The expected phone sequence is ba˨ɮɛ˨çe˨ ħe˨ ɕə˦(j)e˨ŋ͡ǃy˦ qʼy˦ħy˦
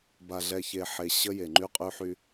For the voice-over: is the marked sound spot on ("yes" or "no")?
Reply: yes